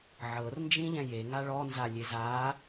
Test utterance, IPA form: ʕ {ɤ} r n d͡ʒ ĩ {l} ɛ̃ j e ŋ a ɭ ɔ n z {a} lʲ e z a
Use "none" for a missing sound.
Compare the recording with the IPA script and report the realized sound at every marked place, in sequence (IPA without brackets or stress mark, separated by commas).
ɤ, ʎ, a